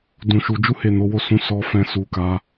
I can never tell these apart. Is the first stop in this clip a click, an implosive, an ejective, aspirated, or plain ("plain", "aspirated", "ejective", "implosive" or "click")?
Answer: plain